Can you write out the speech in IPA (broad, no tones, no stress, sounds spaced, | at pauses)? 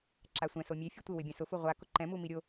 ǁ a sʷ ɛ̃ s o mʲ e fʲ u tʷ ɪ w ɪ bʲ ã s ʊ f u ʁʷ a k ʊ ǃ ɛ̃ m u m i ɾʲ o